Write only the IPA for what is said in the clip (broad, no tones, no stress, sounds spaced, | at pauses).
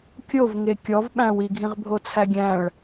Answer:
kʲ o v ŋ e kʲ ɔ v ɓ æ̃ w i ɡʱ ĩ ʁ bʱ o t͡sʰ æ ɡʲ æ̃ ɭ